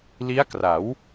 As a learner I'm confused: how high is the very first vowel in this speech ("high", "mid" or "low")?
high